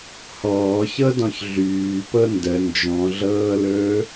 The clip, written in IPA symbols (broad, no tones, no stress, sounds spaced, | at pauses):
h ɔː ç ɤ d ɔ̃ ç ɮ yː p ɤ n d ə n d͡ʒ ɔ̃ ɮ ɤː l ɵː